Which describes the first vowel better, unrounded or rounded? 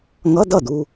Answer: unrounded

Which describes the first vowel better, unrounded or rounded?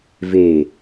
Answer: unrounded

